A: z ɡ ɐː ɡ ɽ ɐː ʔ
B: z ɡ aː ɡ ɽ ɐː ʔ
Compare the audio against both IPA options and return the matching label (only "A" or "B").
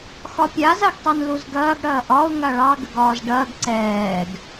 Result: A